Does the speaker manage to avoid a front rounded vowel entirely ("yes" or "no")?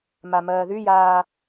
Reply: no